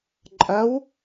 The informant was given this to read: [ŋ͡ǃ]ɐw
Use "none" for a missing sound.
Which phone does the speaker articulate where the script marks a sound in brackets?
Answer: ǃʼ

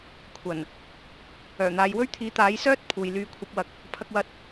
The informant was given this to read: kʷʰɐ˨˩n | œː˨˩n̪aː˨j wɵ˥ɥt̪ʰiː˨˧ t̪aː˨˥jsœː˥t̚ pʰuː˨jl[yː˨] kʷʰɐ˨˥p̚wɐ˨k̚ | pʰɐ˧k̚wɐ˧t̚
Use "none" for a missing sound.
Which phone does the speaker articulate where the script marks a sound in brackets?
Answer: yː˧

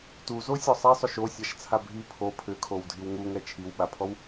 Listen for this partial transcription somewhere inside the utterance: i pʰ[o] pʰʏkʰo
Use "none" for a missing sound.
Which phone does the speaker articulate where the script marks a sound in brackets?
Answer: o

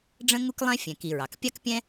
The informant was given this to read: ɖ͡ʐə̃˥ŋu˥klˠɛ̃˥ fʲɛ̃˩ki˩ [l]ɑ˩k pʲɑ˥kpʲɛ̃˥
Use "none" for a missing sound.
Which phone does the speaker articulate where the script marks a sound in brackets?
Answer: ɹ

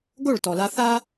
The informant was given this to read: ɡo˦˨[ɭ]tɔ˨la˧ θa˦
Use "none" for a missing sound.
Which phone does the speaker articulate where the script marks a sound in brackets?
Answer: ɭ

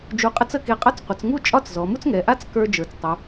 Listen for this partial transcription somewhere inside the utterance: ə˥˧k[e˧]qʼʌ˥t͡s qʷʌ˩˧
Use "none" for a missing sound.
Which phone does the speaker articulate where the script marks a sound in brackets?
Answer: e˧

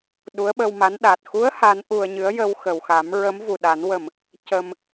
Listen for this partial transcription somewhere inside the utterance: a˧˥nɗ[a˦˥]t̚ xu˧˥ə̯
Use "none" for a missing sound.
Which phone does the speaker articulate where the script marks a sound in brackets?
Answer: a˨˩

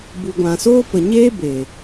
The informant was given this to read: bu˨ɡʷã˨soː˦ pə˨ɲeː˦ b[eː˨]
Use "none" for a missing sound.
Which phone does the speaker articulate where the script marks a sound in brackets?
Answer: eː˨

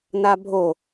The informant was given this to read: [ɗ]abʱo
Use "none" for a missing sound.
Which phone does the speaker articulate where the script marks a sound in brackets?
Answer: n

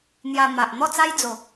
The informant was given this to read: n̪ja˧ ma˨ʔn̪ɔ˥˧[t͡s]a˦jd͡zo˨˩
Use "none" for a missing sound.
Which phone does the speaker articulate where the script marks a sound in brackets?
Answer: t͡s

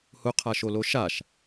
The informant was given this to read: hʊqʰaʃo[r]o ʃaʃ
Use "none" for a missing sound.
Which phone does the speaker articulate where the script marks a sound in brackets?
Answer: l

